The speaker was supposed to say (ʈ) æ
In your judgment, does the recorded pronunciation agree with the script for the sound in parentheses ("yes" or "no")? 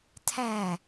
no